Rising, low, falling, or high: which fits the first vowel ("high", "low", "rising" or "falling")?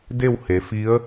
falling